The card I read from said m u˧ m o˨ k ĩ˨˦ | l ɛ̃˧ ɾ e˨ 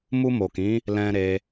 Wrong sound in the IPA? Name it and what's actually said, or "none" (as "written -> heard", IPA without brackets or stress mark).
e˨ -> e˧